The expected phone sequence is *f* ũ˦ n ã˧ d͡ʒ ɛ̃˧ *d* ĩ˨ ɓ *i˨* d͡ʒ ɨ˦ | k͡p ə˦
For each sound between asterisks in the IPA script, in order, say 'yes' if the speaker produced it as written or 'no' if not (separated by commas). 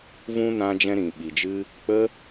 no, no, yes